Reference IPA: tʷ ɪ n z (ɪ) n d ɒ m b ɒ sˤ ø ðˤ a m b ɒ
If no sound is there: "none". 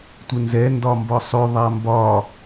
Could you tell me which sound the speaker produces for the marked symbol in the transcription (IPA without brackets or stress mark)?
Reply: ɛ